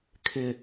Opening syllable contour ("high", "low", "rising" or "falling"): low